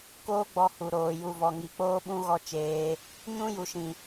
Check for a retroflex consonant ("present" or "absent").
absent